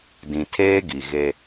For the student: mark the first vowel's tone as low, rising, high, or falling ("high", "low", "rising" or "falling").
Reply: low